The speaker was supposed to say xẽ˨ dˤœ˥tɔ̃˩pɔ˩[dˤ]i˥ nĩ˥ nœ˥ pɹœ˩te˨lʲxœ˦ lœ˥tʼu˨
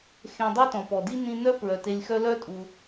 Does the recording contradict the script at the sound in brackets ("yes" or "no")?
yes